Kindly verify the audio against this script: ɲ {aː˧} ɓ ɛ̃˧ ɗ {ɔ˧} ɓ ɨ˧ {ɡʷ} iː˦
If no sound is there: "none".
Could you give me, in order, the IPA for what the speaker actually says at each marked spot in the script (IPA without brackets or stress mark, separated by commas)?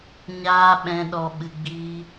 aː˧, ɔ˧, ɡ͡b